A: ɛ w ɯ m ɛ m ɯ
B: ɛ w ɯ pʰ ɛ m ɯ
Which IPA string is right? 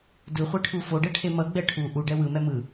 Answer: A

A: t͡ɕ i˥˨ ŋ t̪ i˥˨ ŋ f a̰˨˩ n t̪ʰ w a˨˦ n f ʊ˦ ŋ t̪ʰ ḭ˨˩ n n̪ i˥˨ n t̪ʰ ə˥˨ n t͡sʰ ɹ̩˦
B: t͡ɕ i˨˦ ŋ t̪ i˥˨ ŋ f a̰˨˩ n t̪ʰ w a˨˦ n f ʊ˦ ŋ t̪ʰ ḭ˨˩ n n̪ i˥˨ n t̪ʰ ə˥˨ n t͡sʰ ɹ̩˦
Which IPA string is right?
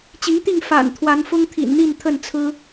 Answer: B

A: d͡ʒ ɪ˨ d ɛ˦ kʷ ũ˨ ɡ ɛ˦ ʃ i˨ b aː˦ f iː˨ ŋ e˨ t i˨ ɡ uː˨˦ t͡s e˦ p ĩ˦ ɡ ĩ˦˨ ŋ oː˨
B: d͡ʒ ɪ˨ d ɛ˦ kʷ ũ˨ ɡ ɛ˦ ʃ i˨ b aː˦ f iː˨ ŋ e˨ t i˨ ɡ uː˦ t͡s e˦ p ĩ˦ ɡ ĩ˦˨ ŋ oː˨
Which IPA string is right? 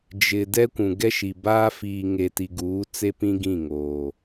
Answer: A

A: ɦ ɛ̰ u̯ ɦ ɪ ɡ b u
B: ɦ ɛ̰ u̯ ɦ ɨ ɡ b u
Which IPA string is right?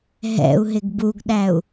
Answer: A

